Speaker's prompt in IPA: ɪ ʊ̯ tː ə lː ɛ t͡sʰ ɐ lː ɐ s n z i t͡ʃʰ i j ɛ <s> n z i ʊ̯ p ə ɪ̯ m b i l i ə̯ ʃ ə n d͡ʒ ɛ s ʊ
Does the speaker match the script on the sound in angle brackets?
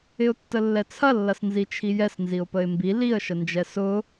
yes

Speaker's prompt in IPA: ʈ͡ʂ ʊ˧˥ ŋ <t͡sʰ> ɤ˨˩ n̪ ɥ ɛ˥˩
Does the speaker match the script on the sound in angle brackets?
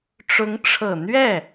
no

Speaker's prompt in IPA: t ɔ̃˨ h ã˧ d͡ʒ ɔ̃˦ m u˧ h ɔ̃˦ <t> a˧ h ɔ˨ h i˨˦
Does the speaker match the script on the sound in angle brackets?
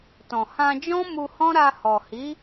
no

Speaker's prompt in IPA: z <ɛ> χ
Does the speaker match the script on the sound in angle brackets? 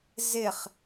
no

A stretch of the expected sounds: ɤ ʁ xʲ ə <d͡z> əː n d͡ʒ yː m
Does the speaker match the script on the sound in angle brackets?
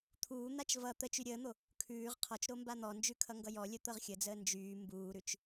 yes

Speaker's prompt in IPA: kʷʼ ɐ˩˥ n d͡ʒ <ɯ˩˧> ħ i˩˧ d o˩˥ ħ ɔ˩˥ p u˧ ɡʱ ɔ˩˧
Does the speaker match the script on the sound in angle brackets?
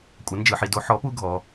yes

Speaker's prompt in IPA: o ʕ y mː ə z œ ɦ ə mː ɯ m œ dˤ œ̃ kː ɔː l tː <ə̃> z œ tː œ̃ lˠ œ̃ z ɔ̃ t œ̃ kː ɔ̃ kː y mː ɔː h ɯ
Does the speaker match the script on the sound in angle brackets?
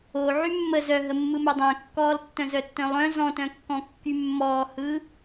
no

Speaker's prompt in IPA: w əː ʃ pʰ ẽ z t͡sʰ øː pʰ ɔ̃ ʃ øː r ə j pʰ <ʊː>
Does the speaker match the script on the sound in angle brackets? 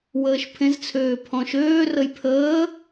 no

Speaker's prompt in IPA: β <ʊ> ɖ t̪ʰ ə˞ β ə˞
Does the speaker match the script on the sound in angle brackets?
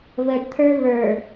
no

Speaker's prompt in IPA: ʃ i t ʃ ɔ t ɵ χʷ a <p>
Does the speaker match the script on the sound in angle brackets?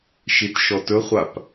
yes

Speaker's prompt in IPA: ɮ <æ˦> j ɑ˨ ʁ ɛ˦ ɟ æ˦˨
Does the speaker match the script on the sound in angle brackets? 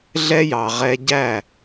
no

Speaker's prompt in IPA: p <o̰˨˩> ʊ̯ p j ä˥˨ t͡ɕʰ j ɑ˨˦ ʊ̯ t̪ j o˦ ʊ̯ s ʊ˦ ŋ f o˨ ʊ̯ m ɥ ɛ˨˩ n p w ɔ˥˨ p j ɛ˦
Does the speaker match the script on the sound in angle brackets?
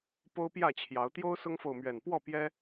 no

